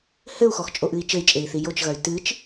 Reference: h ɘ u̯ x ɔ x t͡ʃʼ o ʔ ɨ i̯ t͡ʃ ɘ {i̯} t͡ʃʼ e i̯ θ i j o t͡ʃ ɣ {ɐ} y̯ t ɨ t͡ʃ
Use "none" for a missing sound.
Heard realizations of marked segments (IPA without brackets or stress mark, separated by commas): i̯, ɐ